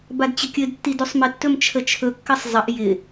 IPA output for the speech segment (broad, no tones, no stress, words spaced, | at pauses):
badt͡ɕəkʲɘdtːid usˤmɪtːɵm t͡ʃʰət͡ʃʰɵkːɘsˤ zˤəʔ jɪ